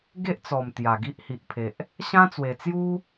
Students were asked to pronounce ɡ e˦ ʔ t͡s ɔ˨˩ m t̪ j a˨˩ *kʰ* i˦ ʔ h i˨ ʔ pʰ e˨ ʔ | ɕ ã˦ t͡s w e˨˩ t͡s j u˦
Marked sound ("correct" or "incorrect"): incorrect